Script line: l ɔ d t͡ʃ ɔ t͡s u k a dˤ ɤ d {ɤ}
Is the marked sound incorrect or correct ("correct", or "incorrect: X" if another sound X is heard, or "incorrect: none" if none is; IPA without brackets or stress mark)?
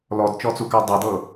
correct